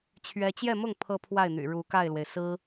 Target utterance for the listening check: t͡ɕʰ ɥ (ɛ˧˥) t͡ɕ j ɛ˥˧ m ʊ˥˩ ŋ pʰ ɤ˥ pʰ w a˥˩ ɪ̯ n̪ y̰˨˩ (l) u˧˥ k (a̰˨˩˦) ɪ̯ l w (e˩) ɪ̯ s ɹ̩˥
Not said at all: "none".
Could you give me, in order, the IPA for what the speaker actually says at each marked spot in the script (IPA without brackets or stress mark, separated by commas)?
ɛ˥, ɻ, a˥˩, e˩